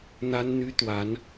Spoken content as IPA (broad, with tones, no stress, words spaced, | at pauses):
n̪a˥nn̪y˥t̪wa˧˥n